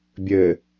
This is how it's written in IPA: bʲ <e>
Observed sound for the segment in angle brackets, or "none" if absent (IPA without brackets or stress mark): ɘ